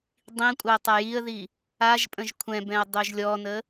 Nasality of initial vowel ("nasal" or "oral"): nasal